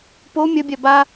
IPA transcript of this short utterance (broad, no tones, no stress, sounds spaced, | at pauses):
p o mʲ ɐ bʲ a b a